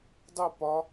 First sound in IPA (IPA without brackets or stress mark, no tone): dˤ